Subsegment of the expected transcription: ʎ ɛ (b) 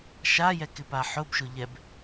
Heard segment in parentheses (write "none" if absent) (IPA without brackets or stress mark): b